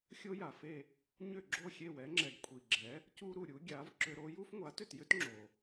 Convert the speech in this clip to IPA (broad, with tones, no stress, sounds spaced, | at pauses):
xʲ o˥ j a˩ f e˥˩ | ɲ ʏ˥˩ ɡ͡ǁ o˥˩ xʲ e˥˩ w ɛ˩˥ ŋ͡ǁ ɛ˩ ɡ kʷʰ i˩ ɡ͡ǁ ɛ˩˥ | c u˥ ɾ u˩ ɾʲ u˩˥ ɡʲ a˩˥ v ǁ ʏ˧ ɾ o˥ j u˥ f ŋʷ a˩˥ t ʏ˥˩ t j ʏ˥ t ŋ͡ǁ o˩